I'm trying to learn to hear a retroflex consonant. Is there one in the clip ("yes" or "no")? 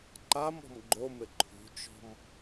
no